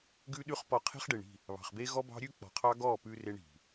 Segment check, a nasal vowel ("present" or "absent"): absent